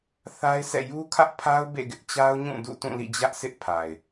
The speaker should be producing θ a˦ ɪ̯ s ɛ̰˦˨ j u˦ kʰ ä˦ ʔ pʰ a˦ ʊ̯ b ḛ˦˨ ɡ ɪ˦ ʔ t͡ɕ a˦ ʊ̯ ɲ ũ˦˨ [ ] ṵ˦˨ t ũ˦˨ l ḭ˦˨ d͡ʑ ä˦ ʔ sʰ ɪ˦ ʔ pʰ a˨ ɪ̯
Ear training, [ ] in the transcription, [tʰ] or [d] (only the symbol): d